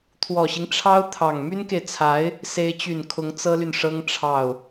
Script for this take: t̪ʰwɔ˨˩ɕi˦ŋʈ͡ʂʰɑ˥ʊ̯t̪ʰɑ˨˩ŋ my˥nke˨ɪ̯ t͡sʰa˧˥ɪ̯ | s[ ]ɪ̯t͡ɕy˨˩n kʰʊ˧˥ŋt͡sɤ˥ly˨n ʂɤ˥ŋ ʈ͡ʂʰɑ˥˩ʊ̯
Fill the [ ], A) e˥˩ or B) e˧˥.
B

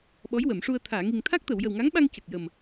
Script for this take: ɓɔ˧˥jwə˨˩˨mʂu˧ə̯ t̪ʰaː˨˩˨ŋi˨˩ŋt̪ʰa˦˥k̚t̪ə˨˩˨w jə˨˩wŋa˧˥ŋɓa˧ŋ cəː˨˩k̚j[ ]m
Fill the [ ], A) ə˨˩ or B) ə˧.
A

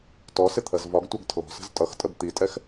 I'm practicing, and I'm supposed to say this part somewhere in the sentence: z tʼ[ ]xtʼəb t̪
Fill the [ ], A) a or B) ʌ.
B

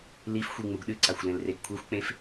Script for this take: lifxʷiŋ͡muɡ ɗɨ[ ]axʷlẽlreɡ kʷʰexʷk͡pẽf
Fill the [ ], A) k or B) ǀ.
B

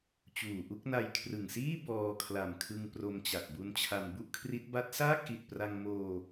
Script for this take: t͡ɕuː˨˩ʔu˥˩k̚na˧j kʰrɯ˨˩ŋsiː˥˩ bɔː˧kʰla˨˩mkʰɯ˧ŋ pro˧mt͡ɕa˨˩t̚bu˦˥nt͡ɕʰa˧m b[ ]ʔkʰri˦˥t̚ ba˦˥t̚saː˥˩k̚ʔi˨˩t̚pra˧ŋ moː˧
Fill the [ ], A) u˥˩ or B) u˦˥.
A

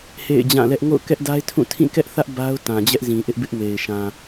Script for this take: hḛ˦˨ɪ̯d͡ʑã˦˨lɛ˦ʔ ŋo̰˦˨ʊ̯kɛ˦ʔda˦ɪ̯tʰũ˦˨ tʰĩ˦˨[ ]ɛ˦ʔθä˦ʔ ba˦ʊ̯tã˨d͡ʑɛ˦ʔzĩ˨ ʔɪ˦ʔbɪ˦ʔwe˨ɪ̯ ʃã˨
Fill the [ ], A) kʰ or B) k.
B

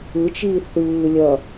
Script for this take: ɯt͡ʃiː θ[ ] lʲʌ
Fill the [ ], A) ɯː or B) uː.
A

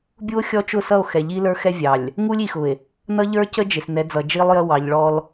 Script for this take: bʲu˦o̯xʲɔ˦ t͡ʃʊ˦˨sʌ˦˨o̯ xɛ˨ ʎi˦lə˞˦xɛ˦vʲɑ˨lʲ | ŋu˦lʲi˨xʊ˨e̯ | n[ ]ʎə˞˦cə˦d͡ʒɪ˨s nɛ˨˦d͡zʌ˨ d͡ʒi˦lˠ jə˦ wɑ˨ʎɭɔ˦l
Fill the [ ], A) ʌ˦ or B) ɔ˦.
A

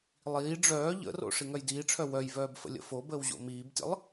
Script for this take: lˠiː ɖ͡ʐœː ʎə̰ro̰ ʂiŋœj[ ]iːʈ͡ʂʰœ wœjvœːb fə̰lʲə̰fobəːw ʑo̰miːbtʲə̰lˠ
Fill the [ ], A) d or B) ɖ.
A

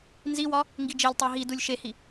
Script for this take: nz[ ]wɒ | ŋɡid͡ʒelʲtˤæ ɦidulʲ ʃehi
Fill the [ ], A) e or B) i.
B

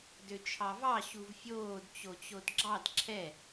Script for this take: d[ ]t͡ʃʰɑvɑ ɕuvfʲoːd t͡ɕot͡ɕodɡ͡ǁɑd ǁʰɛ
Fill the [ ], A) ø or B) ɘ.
A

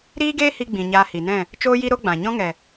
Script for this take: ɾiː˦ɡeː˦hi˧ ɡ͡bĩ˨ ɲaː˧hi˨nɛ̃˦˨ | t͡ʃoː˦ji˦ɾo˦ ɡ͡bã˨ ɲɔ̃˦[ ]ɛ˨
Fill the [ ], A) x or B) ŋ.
B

